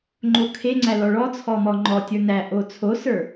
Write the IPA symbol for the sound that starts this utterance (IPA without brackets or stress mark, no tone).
ŋ͡ǃ